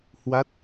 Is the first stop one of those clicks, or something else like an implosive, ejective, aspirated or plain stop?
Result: plain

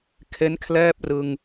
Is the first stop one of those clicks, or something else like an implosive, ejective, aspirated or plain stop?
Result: aspirated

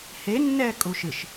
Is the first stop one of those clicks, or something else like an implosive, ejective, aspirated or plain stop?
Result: ejective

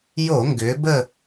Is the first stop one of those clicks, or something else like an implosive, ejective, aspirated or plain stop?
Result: plain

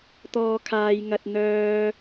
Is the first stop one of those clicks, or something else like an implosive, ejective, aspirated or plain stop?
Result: plain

